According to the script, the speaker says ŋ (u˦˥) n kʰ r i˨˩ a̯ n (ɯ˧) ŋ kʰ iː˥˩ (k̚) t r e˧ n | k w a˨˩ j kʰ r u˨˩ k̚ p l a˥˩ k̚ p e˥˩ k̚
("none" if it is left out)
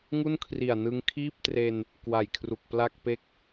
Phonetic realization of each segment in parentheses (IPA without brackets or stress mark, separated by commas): u˥˩, ɯ˧, p̚